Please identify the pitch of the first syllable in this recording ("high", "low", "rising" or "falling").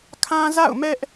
high